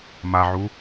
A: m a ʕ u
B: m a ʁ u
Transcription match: A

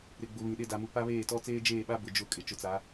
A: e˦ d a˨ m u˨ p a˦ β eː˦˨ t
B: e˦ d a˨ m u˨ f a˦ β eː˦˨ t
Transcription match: A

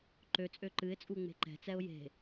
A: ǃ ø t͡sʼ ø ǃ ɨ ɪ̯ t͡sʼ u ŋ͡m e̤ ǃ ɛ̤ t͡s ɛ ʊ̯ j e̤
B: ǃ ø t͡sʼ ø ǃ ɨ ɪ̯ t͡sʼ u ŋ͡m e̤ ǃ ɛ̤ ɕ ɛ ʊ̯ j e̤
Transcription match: A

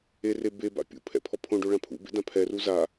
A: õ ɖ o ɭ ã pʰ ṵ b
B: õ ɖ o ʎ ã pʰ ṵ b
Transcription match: A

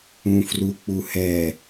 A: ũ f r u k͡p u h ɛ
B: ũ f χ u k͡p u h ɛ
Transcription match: A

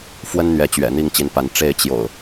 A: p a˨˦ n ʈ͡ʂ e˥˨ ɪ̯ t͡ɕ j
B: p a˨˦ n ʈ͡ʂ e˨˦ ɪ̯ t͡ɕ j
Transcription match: A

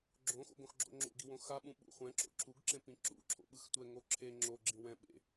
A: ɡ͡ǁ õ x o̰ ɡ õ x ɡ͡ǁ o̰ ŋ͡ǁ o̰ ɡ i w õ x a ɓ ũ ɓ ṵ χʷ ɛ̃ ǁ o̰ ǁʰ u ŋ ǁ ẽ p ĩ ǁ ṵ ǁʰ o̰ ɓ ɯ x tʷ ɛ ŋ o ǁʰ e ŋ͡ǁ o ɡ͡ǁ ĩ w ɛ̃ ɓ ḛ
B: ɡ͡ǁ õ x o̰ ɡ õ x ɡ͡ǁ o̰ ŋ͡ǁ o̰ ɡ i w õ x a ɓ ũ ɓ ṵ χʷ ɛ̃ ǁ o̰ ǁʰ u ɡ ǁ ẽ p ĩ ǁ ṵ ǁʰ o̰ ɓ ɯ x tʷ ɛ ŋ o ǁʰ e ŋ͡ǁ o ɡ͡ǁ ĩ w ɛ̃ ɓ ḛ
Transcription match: B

